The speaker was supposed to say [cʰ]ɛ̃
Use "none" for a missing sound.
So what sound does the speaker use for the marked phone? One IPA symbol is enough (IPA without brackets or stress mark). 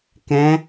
k